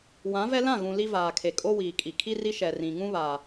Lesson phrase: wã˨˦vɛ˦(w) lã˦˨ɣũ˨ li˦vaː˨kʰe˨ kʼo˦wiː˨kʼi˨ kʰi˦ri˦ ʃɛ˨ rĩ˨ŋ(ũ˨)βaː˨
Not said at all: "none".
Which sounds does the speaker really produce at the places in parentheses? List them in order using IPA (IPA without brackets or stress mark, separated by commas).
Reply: none, ũ˦